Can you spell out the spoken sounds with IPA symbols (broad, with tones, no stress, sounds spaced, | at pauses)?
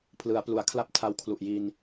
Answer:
pʰ l ɯ˩˦ a̯ p l u˩˦ a̯ kʰ l a˦˥ p̚ tʰ a˧ w kʰ l u˨˩ ʔ j i˧ n